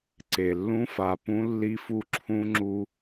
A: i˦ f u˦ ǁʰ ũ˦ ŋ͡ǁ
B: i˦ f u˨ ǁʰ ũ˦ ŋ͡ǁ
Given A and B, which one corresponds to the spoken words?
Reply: A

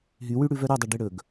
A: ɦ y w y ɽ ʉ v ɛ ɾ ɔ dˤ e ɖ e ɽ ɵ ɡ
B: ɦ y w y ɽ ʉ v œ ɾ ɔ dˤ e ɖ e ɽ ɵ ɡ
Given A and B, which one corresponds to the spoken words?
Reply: B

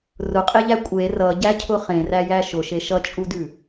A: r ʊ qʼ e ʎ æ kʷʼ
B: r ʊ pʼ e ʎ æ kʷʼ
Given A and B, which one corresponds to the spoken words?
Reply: A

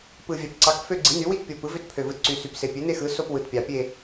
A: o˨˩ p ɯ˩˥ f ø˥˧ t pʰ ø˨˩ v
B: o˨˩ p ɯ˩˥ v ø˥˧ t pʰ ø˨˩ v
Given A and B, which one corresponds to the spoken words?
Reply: B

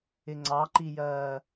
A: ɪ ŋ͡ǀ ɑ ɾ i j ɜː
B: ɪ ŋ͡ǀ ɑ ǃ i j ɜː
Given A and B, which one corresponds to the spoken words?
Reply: B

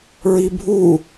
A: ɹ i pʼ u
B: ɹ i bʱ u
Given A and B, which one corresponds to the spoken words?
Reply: B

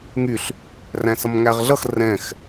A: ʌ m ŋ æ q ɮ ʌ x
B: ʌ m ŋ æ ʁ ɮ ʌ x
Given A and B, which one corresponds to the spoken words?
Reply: B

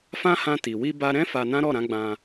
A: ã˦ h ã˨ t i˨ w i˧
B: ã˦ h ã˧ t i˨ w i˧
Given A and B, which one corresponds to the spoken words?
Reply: B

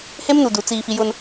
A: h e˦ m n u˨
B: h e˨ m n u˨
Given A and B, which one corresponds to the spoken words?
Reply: A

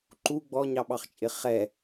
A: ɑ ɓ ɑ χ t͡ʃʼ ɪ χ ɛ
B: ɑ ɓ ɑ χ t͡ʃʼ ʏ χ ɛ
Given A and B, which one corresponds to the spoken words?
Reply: A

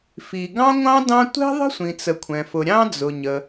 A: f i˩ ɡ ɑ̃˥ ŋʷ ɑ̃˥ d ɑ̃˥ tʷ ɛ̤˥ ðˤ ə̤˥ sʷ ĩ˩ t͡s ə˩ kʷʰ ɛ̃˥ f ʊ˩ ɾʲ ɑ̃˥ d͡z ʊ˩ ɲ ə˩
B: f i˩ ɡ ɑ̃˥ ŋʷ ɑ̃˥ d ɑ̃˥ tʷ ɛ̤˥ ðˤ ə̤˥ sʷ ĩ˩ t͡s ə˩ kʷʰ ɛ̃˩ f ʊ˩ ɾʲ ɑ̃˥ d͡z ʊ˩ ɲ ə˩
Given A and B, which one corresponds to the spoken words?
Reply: B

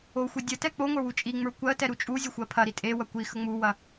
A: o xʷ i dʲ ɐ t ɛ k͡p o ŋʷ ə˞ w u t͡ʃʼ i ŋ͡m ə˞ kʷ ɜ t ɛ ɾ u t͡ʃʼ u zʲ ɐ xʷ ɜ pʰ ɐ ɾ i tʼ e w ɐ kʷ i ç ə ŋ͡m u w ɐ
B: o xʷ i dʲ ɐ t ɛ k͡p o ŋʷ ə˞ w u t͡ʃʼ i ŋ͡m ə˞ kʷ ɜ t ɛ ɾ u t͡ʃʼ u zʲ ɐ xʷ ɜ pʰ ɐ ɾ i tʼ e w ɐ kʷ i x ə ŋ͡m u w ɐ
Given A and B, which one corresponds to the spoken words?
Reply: B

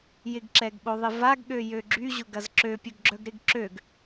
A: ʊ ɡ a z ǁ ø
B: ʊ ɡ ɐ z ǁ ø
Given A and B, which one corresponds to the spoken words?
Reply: B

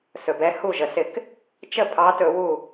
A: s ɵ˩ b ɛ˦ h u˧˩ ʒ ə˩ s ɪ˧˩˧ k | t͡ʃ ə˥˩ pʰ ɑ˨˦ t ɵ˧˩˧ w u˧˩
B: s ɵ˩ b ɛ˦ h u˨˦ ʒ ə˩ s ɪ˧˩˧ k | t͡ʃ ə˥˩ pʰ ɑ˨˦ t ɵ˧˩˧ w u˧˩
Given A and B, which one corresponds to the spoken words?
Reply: A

